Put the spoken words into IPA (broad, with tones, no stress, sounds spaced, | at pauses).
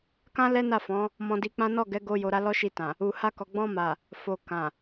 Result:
k ã˦ l ɛ˦ n a˦˨ f ɔ̃˨˦ | m ɔ̃˧ d i˧ k͡p ã˦ n ɔ˦˨ ɡ ɛ˨˦ ɡ o˦ j o˧ ɾ a˦ l ɔ˦ ʃ i˧ t ã˨ | u˨ h a˧ k ɔ˨ ɡ͡b ɔ̃˧ m a˨ | f o˨ k ã˨